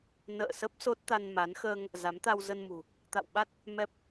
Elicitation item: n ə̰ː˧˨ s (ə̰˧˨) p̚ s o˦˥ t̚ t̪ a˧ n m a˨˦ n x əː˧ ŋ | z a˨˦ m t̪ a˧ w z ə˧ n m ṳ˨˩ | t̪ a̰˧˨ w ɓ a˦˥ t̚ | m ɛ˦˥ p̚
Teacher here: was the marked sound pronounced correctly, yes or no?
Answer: no